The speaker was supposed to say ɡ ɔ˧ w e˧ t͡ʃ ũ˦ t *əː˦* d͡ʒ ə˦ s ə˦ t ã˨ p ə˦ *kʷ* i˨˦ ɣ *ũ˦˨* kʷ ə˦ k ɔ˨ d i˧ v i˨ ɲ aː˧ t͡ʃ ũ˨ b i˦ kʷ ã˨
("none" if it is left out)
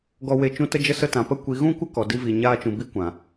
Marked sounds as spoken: ə˦, kʷ, ũ˦

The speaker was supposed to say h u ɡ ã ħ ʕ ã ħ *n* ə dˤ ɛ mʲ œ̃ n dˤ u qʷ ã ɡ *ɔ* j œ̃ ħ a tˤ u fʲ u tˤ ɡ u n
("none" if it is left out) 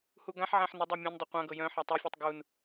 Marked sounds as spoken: n, ɤ

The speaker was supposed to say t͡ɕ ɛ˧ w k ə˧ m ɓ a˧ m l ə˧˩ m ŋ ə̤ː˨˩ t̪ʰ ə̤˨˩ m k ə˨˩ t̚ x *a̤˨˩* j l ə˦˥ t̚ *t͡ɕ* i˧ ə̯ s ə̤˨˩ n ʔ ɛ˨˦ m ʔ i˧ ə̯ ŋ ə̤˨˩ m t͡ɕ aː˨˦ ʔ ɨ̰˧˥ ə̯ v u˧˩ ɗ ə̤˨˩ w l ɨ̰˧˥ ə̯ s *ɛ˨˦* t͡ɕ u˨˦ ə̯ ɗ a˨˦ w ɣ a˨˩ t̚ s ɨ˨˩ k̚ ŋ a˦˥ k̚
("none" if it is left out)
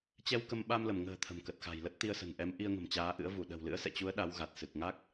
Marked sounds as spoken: a̤˨˩, t̪, ɛ̰˧˨

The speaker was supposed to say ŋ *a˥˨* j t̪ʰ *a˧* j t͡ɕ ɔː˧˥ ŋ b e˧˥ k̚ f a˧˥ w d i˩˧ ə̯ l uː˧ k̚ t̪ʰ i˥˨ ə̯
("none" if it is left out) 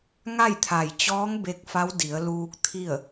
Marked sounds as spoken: a˥˨, a˧˩

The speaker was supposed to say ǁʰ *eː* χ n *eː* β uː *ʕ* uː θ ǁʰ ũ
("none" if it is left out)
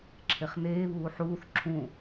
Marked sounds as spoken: e, eː, ħ

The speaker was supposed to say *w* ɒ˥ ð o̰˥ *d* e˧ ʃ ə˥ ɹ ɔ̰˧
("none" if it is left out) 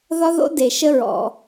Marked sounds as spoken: ð, d

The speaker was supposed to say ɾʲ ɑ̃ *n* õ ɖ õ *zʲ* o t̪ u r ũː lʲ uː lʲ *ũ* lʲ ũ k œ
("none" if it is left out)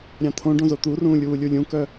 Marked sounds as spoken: t̪ʰ, z, u

